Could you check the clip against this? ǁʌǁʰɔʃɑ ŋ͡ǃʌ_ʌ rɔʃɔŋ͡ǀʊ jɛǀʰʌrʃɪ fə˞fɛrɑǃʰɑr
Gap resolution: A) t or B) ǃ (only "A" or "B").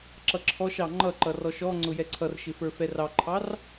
B